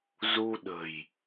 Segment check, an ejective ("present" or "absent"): absent